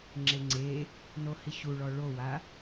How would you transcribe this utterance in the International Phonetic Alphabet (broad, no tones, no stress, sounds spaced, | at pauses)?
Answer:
ŋ͡ǁ e ŋ͡ǀ e | n o h i ɕ u ɭ ɔ ɭ o w a